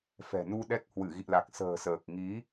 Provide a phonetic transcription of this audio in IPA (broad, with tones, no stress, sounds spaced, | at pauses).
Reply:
f ɛ̤˨˩ n u˧ ɗ ɛ˦˥ k̚ h w ɨ˧˩ ɣ ḭ˧˨ l a˨˩ k̚ s ə̤ː˨˩ s əː˨˩ k̚ ŋ i˨˦